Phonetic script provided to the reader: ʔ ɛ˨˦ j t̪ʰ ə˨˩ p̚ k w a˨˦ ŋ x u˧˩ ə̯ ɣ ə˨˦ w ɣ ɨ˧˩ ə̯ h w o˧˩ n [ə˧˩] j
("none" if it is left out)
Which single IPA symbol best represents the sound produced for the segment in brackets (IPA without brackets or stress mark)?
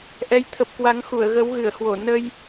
ə˧